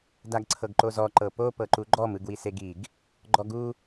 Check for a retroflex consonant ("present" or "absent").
absent